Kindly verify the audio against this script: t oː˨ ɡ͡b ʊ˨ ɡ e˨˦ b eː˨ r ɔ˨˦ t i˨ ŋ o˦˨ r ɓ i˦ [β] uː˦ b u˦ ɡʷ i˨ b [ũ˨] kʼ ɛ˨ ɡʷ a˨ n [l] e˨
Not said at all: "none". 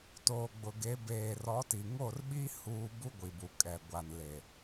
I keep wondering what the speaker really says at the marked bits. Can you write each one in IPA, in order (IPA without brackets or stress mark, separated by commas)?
h, u˨, l